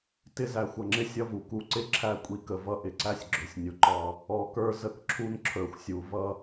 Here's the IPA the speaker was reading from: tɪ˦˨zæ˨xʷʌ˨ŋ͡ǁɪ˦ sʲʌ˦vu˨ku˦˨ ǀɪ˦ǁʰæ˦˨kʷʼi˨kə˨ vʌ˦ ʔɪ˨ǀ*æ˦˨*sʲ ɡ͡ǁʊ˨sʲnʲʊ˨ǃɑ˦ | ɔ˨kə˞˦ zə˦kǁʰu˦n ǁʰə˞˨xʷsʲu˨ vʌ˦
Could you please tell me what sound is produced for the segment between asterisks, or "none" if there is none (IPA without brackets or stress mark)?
æ˦